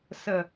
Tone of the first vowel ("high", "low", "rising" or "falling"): low